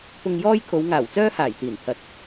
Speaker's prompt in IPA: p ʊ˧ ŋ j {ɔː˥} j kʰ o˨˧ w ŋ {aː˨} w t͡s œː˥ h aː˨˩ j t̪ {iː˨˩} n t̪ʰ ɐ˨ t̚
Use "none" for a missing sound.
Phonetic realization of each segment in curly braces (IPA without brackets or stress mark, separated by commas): ɔː˥, aː˨˩, iː˨˩